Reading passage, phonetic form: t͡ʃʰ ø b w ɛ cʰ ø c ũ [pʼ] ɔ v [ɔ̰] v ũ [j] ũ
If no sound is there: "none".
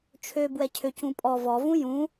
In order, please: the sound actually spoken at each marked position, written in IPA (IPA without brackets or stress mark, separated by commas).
pʼ, ɔ, j